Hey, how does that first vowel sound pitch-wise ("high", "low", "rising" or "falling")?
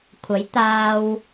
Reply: rising